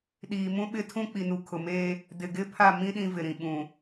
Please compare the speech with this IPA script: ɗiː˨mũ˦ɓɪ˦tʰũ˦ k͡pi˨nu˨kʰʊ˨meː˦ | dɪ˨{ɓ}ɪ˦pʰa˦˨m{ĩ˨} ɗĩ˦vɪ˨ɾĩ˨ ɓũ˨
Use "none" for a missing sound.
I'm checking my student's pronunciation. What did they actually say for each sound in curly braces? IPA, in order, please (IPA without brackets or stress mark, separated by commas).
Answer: ɡ, ĩ˦